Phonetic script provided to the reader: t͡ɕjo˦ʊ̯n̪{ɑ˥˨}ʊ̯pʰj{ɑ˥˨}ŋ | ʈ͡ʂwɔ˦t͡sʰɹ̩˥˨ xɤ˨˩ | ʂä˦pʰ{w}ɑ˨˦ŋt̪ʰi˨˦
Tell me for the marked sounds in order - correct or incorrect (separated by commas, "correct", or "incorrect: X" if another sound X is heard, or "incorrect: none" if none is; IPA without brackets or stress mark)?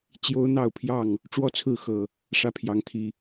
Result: correct, correct, incorrect: j